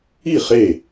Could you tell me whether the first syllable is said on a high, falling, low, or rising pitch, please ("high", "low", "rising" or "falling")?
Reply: falling